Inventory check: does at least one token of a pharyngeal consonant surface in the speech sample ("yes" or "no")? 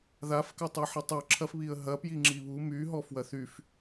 yes